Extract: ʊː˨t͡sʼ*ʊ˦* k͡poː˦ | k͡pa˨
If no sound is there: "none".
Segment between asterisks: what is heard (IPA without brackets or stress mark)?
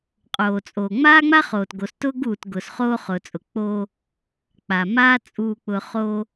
ʊ˨